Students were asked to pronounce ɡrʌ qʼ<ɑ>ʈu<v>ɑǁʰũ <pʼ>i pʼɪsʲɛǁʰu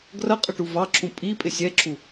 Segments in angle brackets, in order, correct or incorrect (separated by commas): incorrect, correct, correct